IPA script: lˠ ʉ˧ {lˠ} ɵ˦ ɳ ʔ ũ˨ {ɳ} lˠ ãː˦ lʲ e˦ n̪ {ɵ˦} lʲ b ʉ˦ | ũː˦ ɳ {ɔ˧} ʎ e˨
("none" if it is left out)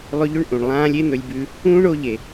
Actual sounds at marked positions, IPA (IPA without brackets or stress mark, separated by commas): ʎ, ɳ, ɵ˦, o˧